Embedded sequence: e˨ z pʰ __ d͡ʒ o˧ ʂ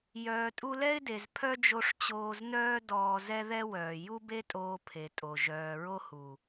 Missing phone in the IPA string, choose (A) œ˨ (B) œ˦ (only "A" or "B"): B